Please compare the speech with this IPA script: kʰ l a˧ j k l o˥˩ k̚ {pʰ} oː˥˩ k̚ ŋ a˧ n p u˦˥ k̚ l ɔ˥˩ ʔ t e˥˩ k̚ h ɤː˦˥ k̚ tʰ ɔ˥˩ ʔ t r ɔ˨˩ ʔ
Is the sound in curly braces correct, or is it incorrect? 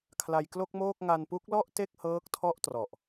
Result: incorrect